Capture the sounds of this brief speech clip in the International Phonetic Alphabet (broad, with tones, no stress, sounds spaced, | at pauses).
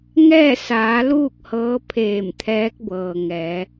ŋ ɛː˥˨ s aː˩˧ l uː˥˨ k̚ h ɤː˧˥ pʰ eː˧˩ m t̪ʰ ɛː˧˥ k̚ b ɤː˩ ŋ ɛː˩˧